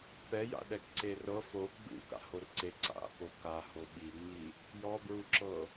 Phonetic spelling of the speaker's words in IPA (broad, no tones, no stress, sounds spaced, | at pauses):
p ɛ j a̰ ɗ ɛ k ǀ e r ɤ f o ɡ͡b ṵ k a̰ h o r ǀ e ǀ a̰ p o k a h o ɓ i ŋ͡m i | j ɔ b ɹ u ǁ ɤ